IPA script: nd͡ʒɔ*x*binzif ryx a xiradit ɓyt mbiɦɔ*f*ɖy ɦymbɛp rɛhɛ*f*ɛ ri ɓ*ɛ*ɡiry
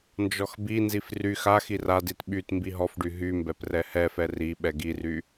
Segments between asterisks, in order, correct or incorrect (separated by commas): correct, correct, correct, correct